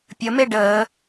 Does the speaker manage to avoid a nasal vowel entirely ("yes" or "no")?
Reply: yes